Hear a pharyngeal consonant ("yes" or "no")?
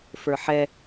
yes